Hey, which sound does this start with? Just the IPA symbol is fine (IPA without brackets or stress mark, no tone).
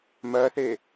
m